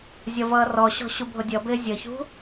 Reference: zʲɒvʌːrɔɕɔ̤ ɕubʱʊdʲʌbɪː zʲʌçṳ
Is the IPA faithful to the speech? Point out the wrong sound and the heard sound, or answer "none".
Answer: none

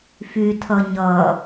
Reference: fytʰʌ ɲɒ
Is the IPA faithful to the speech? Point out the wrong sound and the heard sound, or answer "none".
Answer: ɒ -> ʌ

